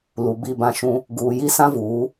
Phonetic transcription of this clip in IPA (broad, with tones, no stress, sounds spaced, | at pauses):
l u˨ b i˦˨ b ã˦ ʃ ũ˦ | ɡ uː˨ j i˦ s ã˦ v uː˨˦